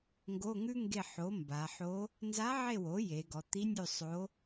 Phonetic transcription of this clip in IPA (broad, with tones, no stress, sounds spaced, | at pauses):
ŋ ɡ o˧˥˧ ŋ ʉ˥ ŋ ɡ e˦˨ ħ o˩˥ m b a˩˧ ħ o˧˥ | n z a˧˥ ʕ e˦˨ w o˩˥ j e˩˧ ɡ ɔ˩˧ t̪ i˧˥ nʲ ʉ˦˨ sˤ o˧˥